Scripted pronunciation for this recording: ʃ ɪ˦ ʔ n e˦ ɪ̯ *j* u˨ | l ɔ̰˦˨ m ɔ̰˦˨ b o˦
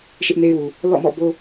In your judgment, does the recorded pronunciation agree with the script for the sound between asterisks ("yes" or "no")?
no